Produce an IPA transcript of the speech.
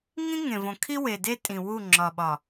ŋ ĩ˦ ŋ ẽ˨ v õ˨ kʰ i˦ w e˨ d e˦ tʼ ĩ˨ w u˦˨ ŋ͡ǁ ɒ˨ ɓ ɒ˨

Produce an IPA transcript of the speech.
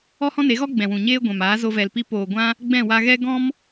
ɔ˦ h ɔ̃˦ n e˨˦ ɣ ɔ˦ ɡ͡b ɛ̃˨ w ũ˨ ɲ eː˦ ɡʷ ɛ̃˨ m aː˨˦ z o˧ v ɛ˨ l p i˧ p oː˨ ɡʷ ã˦ | ɡ͡b ɛ̃˦˨ w a˧ ɣ ɛ˦ ɡ ɔ̃˦ m

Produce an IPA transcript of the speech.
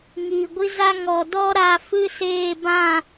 ŋ iː˨ ɡʷ i˧ z a˧ ŋ ɔ˨ d ɔ˦ ɾ a˧ f ɨ˦ s eː˦˨ b ã˦˨

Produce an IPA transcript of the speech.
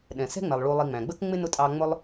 ɗ ɛ̃˨ s ɛ̤˥ ŋ͡m ɛ˨ lˠ ɭ u˨ lˠ i˨ ŋ͡m æ̃˩ ɡ͡b ə˦ k ŋ͡m ɪ˥ n ʊ˦ tʼ ɑ˦ ŋ͡m ʊ˥ lˠ

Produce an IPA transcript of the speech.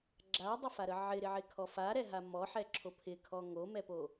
ɡ͡ǁ a dˤ ɪ f a ɾ ə ʕ ɪ ɾ ɪ ʕ ɪ kʰ ɔ f a ɾ ɛ ɦ a m ɔ ħ ɛ ǁʰ o pʰ ɪ kʰ ɔ ŋ o m ɛ p o

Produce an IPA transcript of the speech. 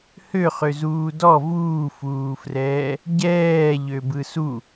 h ø χ ø z uː d ɔ v uː f uː f r ɛː | ɟ ɛː ʎ ø b ɯ s u

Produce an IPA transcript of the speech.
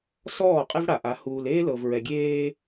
s ɔː˦˨ qʼ ɛ˦ v ɽ a˨ ʔ a˨˦ h uː˨ l eː˦ l ɤ˨ v ɹ ɛ˨ ɡʲ eː˦

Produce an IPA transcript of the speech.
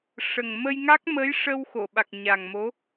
ʂ ə˨˩ ŋ m ə˧ j ŋ a˦˥ k̚ m ə˧˥ j ʂ ə˧ w x o˨˩˨ ɓ a˨˩ k̚ ɲ a˨˩ ŋ m o˧˥

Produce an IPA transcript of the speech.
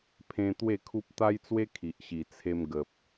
pʰ ẽ˧ t̪ w e˥˧ kʰ u˦ p̚ t̪ a˦ j t͡s w e˦ kʰ i˨ ʔ ɕ i˨˩ t͡sʰ e˧ m ɡ ə˨ p̚

